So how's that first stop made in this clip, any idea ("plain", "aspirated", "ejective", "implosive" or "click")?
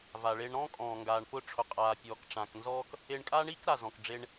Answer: ejective